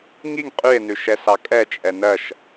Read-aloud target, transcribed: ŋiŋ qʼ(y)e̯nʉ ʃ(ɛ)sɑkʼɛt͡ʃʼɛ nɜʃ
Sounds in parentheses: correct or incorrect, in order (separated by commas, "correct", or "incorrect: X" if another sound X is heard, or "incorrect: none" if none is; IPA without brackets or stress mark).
correct, correct